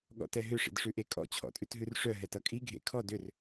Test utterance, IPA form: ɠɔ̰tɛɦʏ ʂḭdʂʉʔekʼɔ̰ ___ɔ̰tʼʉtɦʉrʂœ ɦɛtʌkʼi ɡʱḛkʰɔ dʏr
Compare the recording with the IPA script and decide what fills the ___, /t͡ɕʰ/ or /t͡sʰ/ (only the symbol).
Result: t͡ɕʰ